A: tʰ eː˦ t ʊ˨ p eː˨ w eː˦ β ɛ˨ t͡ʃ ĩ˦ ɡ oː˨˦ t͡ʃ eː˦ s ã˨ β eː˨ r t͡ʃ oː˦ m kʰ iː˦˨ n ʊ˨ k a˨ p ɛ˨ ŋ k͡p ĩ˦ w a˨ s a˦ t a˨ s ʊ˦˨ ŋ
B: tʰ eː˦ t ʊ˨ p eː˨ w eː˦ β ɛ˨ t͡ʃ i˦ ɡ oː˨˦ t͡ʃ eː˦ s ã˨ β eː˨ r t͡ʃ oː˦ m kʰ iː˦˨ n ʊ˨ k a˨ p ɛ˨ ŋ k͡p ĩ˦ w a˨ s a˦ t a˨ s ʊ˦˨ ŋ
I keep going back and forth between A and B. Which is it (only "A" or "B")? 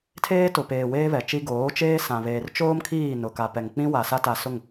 B